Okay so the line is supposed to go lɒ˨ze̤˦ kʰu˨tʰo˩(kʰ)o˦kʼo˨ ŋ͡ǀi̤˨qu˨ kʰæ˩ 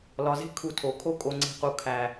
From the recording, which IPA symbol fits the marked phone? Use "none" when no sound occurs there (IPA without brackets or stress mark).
kʰ